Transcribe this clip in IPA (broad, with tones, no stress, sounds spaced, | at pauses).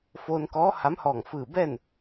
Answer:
f oː˧ n k ɔː˧˥ h a˧˥ m h ɔː˧˩ ŋ f ɯː˧˩ b ɛː˥˨ n